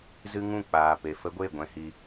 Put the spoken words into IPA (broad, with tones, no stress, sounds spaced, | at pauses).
z ɨ˦ ŋ ũ˦˨ k͡p aː˨ p e˨ f ə˦ ɡʷ e˦˨ ɡʷ ɛ̃˧ h i˧